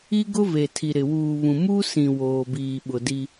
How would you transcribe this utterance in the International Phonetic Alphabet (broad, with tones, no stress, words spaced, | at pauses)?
i˦ ɡʊ˦ ve˨tʰi˨ɾɪ˨ wuː˨βũ˨ mu˦sĩ˨ woː˨biː˨ɓʊ˨ di˦